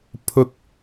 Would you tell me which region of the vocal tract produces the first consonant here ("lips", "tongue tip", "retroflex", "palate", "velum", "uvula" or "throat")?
lips